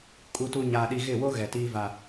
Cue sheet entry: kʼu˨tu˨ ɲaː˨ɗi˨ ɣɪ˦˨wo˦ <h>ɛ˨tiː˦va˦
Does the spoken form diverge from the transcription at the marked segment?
yes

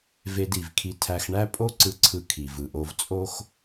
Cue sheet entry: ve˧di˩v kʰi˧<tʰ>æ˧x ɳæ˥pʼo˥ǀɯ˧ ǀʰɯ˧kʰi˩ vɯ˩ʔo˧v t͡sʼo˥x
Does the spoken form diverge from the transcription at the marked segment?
no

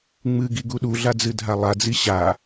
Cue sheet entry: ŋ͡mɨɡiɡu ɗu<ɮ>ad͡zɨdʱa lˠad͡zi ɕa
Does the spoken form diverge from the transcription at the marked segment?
no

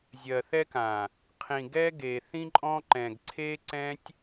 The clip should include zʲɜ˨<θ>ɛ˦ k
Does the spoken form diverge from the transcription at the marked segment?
no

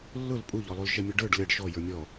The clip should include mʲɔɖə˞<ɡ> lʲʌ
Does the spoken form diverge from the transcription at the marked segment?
yes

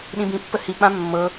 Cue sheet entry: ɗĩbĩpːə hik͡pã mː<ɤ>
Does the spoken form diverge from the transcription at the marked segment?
no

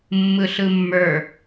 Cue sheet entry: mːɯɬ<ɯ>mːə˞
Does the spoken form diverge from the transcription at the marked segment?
no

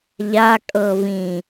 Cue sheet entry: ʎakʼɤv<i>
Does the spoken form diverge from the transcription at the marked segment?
yes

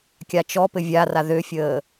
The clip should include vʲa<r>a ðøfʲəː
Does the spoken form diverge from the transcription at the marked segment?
no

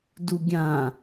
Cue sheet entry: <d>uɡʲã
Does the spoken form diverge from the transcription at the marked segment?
no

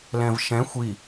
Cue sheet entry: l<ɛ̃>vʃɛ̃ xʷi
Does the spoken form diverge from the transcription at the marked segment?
no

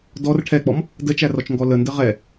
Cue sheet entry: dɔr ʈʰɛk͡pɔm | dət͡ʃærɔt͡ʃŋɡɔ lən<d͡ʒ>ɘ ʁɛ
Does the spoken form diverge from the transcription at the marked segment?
yes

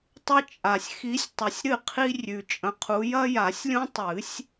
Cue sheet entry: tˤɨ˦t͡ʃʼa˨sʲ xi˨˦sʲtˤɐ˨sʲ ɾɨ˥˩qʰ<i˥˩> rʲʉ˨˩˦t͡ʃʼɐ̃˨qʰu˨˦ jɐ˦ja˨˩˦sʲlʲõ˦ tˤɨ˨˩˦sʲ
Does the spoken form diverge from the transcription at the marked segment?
yes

